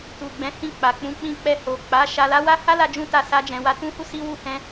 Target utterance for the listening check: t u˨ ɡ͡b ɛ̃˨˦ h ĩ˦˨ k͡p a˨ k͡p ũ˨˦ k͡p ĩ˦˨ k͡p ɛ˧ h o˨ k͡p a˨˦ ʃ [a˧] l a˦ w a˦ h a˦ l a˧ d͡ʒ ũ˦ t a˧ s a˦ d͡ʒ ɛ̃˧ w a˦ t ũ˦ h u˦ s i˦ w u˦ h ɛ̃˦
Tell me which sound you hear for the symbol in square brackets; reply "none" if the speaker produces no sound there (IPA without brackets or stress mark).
a˧